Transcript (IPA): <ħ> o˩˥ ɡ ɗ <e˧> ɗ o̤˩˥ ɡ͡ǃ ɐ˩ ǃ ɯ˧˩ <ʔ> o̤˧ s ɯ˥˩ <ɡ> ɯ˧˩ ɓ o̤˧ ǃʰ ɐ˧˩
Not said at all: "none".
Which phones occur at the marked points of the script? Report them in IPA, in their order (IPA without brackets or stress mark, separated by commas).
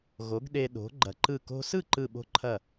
ɣ, e˧, k, ǃ